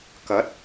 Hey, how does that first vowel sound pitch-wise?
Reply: rising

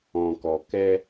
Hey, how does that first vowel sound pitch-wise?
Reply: low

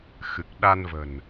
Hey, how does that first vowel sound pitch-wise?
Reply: low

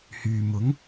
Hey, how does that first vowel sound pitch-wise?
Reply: low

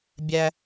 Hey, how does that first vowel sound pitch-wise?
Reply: high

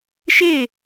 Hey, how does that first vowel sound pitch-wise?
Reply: falling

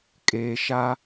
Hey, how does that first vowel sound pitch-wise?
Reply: low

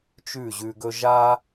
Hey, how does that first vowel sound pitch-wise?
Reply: falling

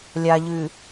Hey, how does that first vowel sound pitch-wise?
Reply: low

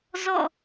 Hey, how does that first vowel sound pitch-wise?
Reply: falling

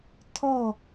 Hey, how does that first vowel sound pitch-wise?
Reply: falling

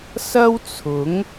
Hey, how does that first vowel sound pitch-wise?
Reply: high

